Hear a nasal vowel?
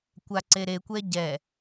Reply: no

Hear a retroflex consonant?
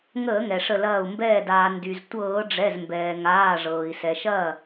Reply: yes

